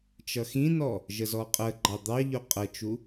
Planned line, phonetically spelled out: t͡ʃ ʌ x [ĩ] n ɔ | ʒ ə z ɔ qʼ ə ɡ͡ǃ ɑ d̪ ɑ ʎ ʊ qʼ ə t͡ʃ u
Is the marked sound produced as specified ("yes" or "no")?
yes